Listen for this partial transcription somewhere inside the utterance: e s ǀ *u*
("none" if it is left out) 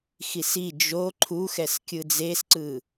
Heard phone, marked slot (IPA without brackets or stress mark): ɯ